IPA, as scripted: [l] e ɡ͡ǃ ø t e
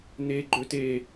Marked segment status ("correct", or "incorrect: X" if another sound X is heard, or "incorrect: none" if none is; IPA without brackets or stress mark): incorrect: n